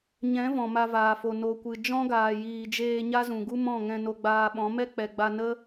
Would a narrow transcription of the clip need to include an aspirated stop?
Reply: no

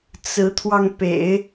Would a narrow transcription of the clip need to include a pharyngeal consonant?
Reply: no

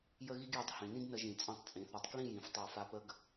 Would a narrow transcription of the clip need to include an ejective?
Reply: yes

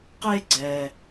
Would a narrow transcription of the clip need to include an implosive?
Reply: no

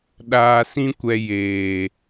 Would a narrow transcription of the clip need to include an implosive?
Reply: yes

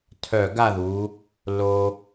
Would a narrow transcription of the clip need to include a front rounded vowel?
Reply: yes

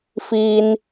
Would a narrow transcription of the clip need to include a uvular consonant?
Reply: no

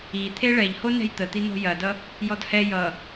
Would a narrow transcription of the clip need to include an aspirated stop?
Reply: yes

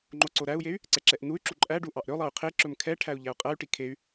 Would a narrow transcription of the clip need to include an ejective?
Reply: yes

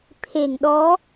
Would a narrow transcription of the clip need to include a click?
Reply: no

